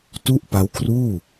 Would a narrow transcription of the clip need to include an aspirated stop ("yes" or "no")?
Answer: yes